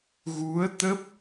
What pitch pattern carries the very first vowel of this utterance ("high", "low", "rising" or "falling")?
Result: rising